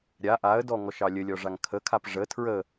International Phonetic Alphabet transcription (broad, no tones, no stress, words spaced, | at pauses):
ɾʲa ʔaə̯dɔ ŋɔʃɑlʲəlʲɔ ʐaŋkʰəkʰap ʐə tʰɹə